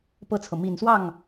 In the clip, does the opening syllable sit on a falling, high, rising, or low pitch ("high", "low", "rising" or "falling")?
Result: falling